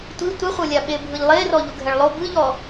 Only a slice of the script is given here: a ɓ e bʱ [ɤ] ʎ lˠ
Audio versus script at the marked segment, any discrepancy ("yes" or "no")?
yes